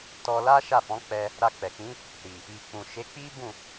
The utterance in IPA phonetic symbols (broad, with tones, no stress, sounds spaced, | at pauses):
t ɔ˧ l a˦ ʃ a˦˨ f ɔ̃˨˦ k͡p ɛ˧ | ɾ a˧ k͡p ɛ˨ k͡p ĩ˨˦ | ɾ i˨ | i˨ k͡p ũ˨ ʃ e˨˦ k͡p i˦ b ũ˦˨